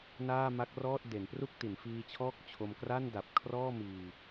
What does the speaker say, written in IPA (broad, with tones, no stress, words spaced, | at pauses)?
naː˥˩ma˦˥k̚rɔː˥˩t̚ de˩˦npru˥˩k̚ti˩˦n fiː˧t͡ɕʰɔː˥˩k̚t͡ɕʰo˧m kra˥˩nda˨˩p̚ kʰrɔː˥˩miː˧